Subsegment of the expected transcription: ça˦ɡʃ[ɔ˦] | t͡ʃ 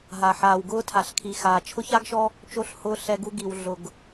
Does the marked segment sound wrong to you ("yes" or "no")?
no